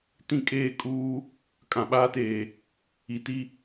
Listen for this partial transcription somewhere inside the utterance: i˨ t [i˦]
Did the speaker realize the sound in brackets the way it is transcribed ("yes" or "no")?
yes